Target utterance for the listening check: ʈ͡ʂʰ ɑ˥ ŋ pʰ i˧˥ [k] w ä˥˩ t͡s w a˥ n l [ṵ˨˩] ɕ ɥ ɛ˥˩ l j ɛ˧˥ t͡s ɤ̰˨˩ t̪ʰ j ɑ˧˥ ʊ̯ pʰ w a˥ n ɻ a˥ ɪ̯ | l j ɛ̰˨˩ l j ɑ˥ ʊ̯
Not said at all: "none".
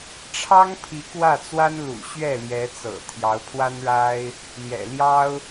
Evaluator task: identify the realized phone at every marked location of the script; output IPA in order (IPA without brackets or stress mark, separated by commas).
k, ṵ˨˩